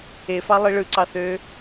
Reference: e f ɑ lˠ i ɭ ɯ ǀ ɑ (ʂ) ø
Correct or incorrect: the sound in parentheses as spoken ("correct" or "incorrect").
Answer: incorrect